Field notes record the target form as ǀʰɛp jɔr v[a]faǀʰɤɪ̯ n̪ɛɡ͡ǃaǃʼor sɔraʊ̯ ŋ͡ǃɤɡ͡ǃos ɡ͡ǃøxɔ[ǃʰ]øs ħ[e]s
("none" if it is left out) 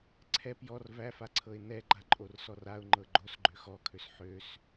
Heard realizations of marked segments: æ, kʰ, ø

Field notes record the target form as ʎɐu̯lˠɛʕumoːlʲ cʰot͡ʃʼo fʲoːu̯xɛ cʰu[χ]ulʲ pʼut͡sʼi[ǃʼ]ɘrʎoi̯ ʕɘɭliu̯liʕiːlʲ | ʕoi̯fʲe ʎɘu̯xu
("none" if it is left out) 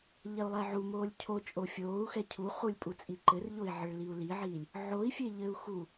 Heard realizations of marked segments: χ, ǃ

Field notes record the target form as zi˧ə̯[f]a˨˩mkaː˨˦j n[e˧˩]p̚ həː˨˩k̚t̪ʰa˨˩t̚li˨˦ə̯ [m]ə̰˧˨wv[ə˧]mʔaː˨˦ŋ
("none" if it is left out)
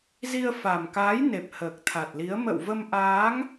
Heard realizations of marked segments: f, e˨˩, m, ə˧

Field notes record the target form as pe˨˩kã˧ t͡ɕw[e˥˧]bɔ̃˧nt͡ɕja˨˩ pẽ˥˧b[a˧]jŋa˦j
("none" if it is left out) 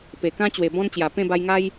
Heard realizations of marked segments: e˨˩, a˧

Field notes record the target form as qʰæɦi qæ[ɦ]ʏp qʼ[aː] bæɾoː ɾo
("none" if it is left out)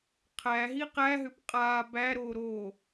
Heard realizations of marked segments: ɦ, aː

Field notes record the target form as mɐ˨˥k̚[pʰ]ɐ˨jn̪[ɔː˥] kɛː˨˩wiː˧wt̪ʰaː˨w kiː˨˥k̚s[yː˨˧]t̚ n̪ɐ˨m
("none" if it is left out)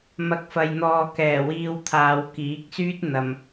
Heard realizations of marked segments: f, ɔː˨, yː˥

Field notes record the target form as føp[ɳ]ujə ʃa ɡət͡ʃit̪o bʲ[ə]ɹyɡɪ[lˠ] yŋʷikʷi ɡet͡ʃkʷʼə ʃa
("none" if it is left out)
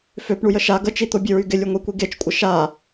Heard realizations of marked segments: ɳ, ə, lʲ

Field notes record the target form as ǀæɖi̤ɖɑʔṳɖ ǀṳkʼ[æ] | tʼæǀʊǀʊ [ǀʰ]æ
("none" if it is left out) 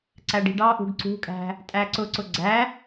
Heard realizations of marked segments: æ̤, ɡ͡ǀ

